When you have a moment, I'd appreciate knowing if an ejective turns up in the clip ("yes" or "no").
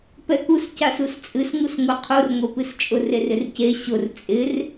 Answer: yes